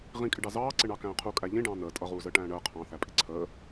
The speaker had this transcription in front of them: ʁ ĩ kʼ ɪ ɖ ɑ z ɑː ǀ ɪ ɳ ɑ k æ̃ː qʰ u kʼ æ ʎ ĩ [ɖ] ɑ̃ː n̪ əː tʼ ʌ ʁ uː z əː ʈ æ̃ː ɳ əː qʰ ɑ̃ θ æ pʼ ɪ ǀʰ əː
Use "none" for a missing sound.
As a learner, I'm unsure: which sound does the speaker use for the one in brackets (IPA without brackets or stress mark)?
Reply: ɖ